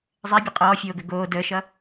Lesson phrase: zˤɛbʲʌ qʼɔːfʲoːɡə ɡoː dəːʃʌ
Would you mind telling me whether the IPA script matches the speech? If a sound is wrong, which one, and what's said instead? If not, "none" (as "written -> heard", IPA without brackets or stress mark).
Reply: none